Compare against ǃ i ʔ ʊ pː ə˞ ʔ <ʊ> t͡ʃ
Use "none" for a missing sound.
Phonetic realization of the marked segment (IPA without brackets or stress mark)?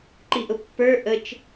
ə